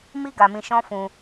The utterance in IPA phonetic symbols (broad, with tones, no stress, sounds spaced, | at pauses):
m i˦ ɡ a˧ m ĩ˧ ʃ ɔ̃˦ f ũ˧